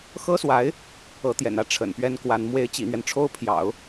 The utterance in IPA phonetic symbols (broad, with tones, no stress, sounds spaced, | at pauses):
x ɤ˥ s w a˧˥ ɪ̯ | ɤ˧˥ t̪ j ɛ̰˨˩ n ä˥ ʈ͡ʂʰ ə̰˨˩ n p ɥ ɛ˥ n k w a˧˥ n m w e˧˥ ɪ̯ t͡ɕ ḭ˨˩ n̪ ɥ ɛ˦ n ʈ͡ʂʰ o˥ ʊ̯ pʰ j ɑ̰˨˩˦ ʊ̯